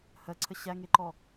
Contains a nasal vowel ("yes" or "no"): no